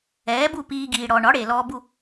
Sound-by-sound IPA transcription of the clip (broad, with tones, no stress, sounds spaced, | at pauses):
ɛː˩˥ b u˥˩ p iː˧ ɡ iː˩ ɽ ɔ˩ ɳ ɒ˩˥ ɽ e˩ l ɔː˧ b u˥˩